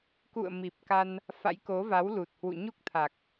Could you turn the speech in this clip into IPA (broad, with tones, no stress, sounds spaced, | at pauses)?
k ṵ˧˨ ə̯ m i˨˩ p̚ k a˧ n | f a̰˧˥ j k o˨˦ v a˨˦ w l u˨˩ t̚ h w ṵ˧˨ ɲ u˦˥ k̚ t̪ʰ a˨˩ k̚